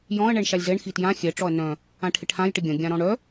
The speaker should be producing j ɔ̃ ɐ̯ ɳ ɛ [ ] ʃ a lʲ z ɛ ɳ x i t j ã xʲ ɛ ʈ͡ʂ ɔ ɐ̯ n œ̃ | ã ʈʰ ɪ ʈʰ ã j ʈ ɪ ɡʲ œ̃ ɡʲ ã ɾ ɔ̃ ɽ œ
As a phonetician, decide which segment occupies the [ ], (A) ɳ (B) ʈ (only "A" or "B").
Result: A